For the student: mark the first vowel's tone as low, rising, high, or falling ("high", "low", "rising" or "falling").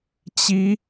rising